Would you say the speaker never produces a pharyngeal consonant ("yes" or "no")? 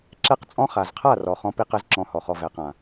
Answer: yes